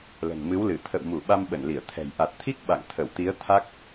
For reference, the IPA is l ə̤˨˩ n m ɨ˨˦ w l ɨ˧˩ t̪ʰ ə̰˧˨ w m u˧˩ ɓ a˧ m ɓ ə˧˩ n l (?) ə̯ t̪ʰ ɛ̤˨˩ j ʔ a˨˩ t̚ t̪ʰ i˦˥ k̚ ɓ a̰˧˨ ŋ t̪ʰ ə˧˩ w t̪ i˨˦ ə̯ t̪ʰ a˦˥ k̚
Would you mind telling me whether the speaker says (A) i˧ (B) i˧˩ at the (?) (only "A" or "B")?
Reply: B